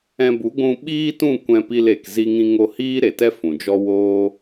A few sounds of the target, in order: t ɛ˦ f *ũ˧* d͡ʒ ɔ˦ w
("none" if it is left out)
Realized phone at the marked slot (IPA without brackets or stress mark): ũ˨